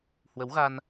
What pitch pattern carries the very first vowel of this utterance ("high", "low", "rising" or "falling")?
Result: rising